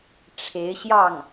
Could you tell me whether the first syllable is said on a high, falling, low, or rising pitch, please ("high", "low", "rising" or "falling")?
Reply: rising